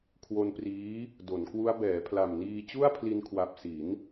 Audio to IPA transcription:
kʰ w o˧ n p r iː˦˥ | d o˩˦ n k w u˦˥ a̯ b ɛː˩˦ pʰ l a˨˩ m n iː˧ t͡ɕ u˥˩ a̯ pʰ l i˧ n kʰ w a˨˩ p̚ s i˩˦ n

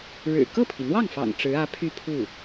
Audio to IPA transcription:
ɻ ɻ̩˨˩ k ɤ˥˩ pʰ i˩ n̪ w ɑ˥˩ ŋ f ɑ̰˨˩ ŋ ʈ͡ʂ ɻ̩˧˥ ä˧˥ pʰ y˥˧ pʰ u˥˩

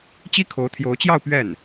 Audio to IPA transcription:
t͡ɕ i˥ kʰ o˧˥ ʊ̯ t̪ʰ j o˧˥ ʊ̯ t͡ɕ j ɑ˥˧ ʊ̯ p ɥ ɛ˥˩ n

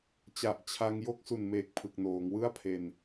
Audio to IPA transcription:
t͡ɕ a˨˩ ʔ t͡ɕʰ a˧ ŋ j o˥˩ k̚ s u˨˩ n m eː˨˩ k̚ pʰ ɯ˨˩ k̚ n oː˩˦ ŋ w ɯ˥˩ a̯ pʰ e˧ n

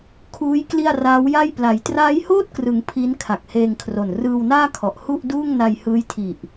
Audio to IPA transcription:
kʰ uː˦˥ j k l i˥˩ a̯ r aː˦˥ w j a˥˩ j p l a˩˦ j t r aː˦˥ j h oː˥˩ t̚ k r ɯ˩˦ ŋ pʰ i˦˥ n kʰ a˨˩ k̚ h eː˧ ŋ kʰ r o˨˩ n r ɯː˧ w n aː˥˩ kʰ ɔ˨˩ ʔ h u˥˩ ʔ d uː˥˩ ŋ n a˧ j h ɯː˦˥ j tʰ i˨˩ ʔ

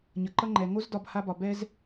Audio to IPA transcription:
ɲ ʌ˨ ǃ ʌ˧ ŋ͡ǃ ɛ˨ ŋ o˦ z d ɒ˧ b h a˦ b ɒ˧ b ɛ˦ z

